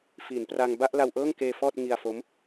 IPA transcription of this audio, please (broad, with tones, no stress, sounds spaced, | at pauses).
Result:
f iː˩˦ n p r a˧ ŋ b a˥˩ ʔ l a˧ w ʔ ɤː˥˩ ŋ k eː˧ f ɔː˥˩ t̚ ŋ i˧ a̯ f o˦˥ m